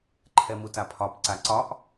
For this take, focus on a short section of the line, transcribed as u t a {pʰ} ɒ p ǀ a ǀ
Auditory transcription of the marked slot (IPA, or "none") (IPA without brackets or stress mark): pʰ